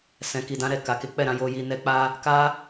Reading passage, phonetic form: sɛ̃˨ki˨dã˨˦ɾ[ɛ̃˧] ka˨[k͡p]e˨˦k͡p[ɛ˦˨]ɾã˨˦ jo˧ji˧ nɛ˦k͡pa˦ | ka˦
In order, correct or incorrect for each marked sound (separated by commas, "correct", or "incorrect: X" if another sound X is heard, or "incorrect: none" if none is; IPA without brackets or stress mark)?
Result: incorrect: ɛ˧, incorrect: k, correct